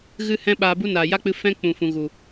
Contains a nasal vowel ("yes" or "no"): yes